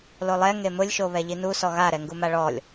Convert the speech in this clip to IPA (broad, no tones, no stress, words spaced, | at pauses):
lolˠɛ ŋemʊlʲʃo βɛʎinusɔ ɣaɾɛŋɡuma ɭɔlʲ